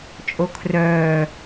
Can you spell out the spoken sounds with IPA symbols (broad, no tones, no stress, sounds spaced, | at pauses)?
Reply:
t͡ʃʼ o kʰ r œː